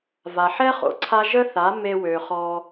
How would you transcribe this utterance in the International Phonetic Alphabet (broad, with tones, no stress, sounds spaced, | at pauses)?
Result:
v a˨ ħ ɛ˦ χ o̰˨ ǀʰ a˦ ʒ ə˦ θ a˨˦ m e˧ w ø˨ χ ɔ˧